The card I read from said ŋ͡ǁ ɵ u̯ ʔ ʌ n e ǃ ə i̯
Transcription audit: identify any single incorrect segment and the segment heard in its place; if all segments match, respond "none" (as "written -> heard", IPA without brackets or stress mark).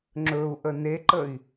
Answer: ʌ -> ə